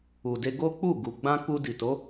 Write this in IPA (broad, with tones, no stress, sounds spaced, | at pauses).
u˨ d e˧ ɡ o˦ k͡p u˦˨ ɡ u˨ ɡ͡b ã˧ k u˧ d i˨ t o˨˦